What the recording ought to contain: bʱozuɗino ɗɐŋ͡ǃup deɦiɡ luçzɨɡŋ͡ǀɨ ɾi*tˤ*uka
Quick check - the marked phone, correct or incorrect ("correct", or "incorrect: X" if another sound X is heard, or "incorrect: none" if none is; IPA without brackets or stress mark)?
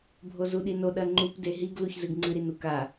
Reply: incorrect: n